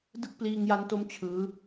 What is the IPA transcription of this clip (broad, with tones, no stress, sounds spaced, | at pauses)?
d ɯ˥˩ k̚ p l iː˧ ŋ j a˦˥ n t o˦˥ m t͡ɕʰ ɯː˦˥